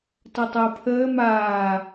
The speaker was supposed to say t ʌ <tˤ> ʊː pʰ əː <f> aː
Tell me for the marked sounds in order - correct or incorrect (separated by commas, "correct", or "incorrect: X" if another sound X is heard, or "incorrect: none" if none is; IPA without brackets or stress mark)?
correct, incorrect: m